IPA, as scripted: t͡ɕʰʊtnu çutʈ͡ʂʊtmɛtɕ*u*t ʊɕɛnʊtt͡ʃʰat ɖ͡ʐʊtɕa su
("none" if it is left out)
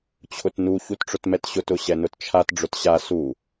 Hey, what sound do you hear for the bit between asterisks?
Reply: ʊ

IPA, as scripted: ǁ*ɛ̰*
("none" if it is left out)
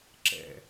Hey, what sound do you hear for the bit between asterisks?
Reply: ɛ̰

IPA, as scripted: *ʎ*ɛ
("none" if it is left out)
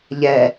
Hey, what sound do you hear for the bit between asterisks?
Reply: ʎ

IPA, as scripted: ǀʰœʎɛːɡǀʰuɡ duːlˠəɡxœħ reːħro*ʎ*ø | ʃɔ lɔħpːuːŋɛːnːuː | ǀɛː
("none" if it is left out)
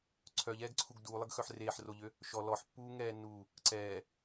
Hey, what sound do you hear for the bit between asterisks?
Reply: ʎ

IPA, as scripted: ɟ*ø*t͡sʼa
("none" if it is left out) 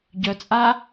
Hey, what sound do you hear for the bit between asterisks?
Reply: œ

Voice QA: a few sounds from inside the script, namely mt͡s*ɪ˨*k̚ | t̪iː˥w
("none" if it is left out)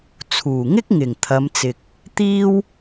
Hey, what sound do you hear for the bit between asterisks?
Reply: ɪ˨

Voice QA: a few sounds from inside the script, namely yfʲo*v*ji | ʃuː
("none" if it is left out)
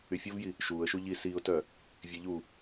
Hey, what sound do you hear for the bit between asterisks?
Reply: v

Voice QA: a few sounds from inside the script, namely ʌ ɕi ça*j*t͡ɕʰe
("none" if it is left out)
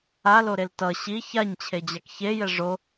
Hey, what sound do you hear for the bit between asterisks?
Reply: ɲ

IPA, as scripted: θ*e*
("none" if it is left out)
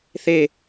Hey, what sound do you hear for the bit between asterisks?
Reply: e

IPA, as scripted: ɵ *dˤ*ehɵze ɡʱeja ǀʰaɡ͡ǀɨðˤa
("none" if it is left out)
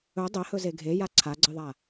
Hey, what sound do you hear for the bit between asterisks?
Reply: dˤ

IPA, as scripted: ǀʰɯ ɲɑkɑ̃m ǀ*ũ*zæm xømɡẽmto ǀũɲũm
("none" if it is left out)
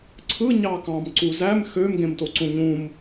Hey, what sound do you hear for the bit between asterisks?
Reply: u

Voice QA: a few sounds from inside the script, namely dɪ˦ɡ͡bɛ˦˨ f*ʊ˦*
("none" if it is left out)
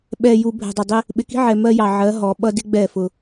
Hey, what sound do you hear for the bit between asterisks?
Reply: ʊ˦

